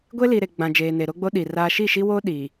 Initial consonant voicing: voiced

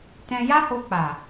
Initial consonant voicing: voiceless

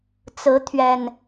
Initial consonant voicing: voiceless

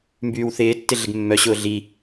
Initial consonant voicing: voiced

